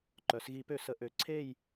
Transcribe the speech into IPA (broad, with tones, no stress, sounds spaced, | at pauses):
ǃ œ˩˧ s ɣ i˧˩˧ p ø˧˩˧ s ə˩˧ ʔ ø˩˧ ǀʰ e˥˧ j